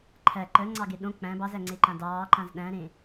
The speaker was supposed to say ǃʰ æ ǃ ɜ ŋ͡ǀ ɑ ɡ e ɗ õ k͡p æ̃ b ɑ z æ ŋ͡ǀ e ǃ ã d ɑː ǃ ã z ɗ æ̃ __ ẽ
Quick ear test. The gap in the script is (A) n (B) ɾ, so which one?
B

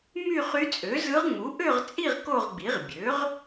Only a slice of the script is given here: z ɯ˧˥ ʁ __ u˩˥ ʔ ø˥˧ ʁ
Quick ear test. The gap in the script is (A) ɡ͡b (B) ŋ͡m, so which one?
B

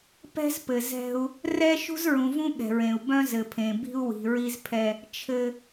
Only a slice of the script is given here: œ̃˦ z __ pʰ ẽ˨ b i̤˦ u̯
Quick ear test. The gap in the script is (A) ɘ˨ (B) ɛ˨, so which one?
A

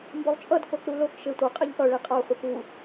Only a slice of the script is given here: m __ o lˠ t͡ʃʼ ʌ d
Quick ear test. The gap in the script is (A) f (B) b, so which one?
B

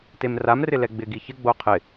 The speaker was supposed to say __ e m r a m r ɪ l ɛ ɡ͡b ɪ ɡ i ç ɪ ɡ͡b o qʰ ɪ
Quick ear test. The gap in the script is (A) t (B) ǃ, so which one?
A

